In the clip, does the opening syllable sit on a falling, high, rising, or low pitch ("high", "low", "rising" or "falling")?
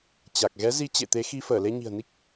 low